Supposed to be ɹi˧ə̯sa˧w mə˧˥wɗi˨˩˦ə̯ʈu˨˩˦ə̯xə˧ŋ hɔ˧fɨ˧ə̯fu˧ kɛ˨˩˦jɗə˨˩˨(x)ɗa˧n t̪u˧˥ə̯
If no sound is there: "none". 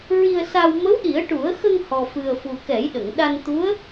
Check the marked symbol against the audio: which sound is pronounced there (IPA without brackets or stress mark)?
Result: ŋ